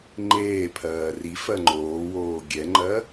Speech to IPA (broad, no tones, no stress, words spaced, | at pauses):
ŋ͡ǃeːpʰɜː ri fɜŋ͡ǃoːwoː ɡʲɛŋ͡ǃɜ